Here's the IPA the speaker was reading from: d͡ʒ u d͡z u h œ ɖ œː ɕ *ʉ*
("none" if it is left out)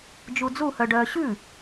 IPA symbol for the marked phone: ʉ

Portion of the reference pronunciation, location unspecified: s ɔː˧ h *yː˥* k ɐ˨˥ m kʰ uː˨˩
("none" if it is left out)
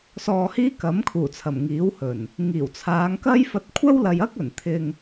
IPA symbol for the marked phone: iː˥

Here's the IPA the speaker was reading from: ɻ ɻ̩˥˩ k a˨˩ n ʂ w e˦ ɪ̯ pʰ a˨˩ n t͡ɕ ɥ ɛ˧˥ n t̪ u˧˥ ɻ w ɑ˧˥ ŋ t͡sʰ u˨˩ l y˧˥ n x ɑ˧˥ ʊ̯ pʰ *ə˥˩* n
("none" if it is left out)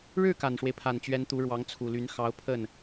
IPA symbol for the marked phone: ə˥˩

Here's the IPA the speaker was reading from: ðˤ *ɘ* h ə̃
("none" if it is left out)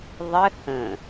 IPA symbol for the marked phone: ɘ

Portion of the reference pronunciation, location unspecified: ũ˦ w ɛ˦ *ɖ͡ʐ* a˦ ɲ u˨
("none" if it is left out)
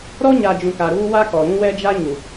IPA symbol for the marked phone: d͡ʒ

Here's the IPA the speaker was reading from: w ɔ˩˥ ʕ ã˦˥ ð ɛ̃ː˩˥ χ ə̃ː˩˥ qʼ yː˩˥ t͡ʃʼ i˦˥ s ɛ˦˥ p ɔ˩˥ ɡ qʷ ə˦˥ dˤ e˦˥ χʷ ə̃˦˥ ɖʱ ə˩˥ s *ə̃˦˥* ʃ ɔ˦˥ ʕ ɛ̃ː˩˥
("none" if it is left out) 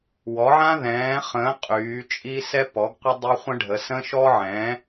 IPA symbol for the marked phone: ə̃˦˥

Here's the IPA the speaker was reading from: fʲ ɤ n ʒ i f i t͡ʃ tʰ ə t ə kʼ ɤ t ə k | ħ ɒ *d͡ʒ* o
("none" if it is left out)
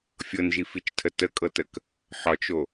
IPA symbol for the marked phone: t͡ʃ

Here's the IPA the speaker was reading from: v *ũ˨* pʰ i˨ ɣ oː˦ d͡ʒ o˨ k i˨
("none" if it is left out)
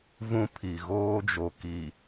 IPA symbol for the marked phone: ũ˦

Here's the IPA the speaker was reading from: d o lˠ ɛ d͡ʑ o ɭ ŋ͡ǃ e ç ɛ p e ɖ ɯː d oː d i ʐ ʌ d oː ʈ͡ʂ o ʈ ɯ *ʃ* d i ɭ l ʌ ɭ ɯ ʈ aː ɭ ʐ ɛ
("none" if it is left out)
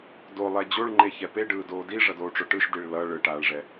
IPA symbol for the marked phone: ʃ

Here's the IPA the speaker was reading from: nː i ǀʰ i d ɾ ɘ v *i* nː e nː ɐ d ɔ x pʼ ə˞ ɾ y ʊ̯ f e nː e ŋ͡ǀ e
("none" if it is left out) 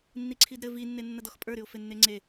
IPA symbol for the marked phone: i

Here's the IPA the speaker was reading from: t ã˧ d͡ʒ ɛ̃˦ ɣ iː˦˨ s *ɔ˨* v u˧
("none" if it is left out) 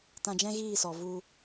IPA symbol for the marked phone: ɔ˨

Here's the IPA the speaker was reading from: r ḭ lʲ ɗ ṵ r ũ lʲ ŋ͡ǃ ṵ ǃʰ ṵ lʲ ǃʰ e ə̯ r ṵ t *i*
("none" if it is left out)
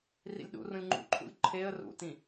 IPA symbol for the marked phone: ĩ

